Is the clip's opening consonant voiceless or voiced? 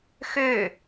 voiceless